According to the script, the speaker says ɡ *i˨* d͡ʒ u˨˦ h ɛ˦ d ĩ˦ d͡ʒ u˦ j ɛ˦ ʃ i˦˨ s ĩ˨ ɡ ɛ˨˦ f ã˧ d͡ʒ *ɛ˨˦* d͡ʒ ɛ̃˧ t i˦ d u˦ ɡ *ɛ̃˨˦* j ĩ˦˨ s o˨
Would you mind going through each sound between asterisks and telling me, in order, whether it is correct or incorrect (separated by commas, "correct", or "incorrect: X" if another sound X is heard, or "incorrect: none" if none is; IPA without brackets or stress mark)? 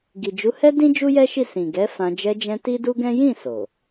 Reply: correct, incorrect: ɛ˧, incorrect: ɛ̃˦